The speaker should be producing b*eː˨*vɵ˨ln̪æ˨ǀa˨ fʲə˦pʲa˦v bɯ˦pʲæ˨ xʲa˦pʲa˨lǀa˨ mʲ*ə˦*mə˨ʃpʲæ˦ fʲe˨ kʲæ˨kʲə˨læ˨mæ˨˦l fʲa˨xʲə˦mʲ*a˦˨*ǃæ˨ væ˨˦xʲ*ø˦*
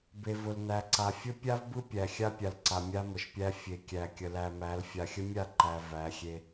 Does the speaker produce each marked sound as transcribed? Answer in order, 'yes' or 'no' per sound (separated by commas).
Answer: no, no, yes, no